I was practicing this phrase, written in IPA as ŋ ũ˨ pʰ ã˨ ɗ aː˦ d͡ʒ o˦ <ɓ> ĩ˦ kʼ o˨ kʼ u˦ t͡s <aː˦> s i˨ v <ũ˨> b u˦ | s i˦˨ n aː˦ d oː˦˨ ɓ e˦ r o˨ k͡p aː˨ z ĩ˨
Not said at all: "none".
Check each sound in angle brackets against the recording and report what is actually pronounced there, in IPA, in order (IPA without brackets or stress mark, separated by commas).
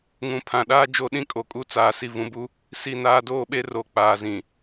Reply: ɗ, aː˨, ũ˨